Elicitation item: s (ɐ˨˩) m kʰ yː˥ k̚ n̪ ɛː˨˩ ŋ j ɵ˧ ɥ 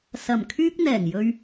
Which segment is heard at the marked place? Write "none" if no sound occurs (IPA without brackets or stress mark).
ɐ˨˩